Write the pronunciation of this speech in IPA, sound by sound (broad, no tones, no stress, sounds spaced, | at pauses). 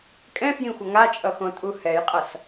kʼ ɛ̃ f j ĩ xʷ ʌ ŋ a t͡ʃʼ ʌ x õ tʼ u h ɛ j qʼ ʌ s